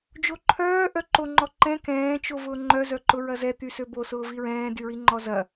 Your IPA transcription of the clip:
d͡ʒoǃʰœː ʔœǃoŋ͡ǃɔǃɛ̃ kɛ̃ːt͡ʃo vʊːŋ͡ǃœzœǃʊ ɹɐzɛt̪ysø bosʊːviɹɛ̃ː dyɹiŋ͡ǃɔzɐ

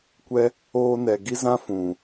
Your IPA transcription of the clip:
kʷɛ˦ | oː˧nɛ˨ɡi˦zã˦ fũ˨

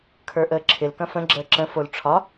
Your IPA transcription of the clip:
kʰə˞ʔəːǁʰɪl kɐ̃fə̃ ɡ͡ǁəːǁə̃ folʈ͡ʂʰɒ

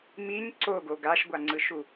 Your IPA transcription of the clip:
miɲ ǀoɡo ɡaʃɡʷaŋ͡ǀɯʃu

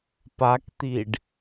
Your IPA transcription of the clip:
pakt̪iɖ

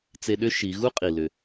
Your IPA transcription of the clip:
t͡se˧ɗʏ˥ ʃi˩˧ɣu˥qʼi˩ lʏ˩

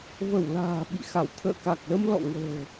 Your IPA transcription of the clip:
və˧˩w la̤ː˨˩ɓḭ˧˨xa˧˩w t̪ʰə̰ː˧˨ka˨˩k̚lə˧m lɔ̰˧˨ŋə̤ː˨˩

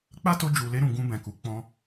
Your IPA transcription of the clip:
k͡pa˦to˧ d͡ʒu˨le˧ɾũ˨ ɡũ˧bɛ̃˨ku˨ k͡pɔ̃˧

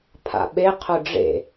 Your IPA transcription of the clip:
pʰa̰ɓe qʰʊɖ͡ʐḛ

